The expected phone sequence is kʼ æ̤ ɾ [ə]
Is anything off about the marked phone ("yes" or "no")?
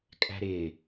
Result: yes